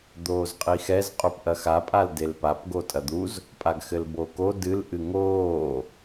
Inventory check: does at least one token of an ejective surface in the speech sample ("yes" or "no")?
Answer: yes